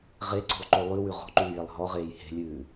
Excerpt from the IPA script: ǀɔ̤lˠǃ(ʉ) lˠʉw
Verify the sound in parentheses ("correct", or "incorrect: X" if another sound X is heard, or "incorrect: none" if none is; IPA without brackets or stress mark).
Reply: incorrect: ø